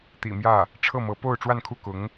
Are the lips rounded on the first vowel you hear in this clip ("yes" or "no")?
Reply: no